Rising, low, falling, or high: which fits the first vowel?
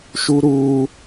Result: high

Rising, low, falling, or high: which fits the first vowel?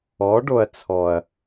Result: rising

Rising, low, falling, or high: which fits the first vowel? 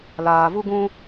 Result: low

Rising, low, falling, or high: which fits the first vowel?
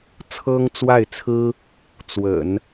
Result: high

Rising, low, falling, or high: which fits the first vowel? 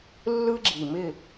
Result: high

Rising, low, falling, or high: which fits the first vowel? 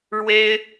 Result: high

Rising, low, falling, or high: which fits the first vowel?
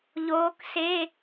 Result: rising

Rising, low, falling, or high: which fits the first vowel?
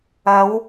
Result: rising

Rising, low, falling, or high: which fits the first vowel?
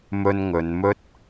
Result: high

